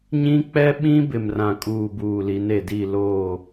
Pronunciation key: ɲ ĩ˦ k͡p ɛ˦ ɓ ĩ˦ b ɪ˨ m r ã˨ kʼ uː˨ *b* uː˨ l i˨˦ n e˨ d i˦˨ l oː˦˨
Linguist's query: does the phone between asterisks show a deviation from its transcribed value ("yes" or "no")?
no